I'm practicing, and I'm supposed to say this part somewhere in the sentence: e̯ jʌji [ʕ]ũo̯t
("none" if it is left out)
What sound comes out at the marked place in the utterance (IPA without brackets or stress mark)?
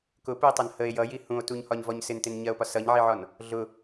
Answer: h